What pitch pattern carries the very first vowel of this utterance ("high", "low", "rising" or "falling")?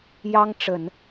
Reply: high